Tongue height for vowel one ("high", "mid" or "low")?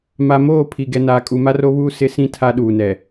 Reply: low